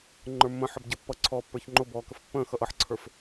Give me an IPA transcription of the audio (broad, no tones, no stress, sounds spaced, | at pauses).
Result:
ŋ͡ǃ ə˞ mː ə̃ ħ ə b ɟ ə pː ʌ ǀʰ ɔː pː ə˞ ç ŋ͡ǃ ʊ b ɔː k ə f pː ə̃ː x ʌ ʔ ʌ ħ ǀʰ ə˞ f